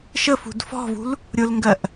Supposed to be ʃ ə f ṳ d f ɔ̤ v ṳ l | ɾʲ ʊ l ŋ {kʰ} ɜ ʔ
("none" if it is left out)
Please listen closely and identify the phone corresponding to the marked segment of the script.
ɡ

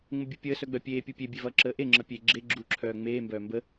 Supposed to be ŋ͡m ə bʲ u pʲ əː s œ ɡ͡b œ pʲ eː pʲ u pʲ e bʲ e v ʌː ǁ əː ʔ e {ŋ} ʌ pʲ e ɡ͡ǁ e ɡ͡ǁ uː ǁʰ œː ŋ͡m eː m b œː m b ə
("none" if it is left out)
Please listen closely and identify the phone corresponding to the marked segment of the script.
ŋ͡ǁ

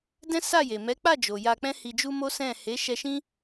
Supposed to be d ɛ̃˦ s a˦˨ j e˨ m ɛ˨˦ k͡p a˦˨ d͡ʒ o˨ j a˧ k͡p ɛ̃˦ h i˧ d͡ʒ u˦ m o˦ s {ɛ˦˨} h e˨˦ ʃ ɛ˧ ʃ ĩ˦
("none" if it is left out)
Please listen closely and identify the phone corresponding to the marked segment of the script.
ɛ̃˦˨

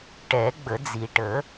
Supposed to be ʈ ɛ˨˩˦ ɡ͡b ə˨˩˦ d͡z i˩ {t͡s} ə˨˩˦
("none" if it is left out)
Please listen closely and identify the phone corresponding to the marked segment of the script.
ʈ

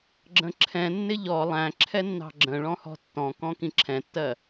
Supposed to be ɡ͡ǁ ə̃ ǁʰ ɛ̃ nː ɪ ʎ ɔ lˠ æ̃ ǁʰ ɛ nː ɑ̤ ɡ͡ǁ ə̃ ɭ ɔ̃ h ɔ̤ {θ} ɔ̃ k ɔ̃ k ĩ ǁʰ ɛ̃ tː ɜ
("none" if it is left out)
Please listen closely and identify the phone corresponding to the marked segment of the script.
tː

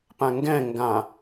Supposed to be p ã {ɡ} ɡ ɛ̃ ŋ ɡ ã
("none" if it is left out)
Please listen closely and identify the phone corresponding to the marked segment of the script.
ŋ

